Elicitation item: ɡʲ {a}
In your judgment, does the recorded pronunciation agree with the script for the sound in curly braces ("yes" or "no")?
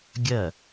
no